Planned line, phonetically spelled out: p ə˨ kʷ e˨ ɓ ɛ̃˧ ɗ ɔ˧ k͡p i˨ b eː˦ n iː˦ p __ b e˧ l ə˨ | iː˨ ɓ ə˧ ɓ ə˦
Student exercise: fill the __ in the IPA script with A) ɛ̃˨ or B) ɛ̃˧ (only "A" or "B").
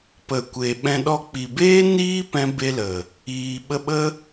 B